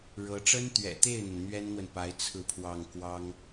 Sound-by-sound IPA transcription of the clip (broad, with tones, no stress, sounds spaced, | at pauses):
ɻ ɤ˧˥ ʈ͡ʂ ə˥ n t̪ ɥ ɛ̰˨˩ t̪ e˥˩ ɪ̯ n̪ ə˩ n n̪ ɥ ɛ˥ n n̪ w ə˨ n p a˧˥ ɪ̯ t͡sʰ ɹ̩˥˧ pʰ w ɑ˥˩ ŋ k w ɑ˥ ŋ